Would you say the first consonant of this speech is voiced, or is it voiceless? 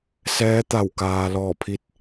voiceless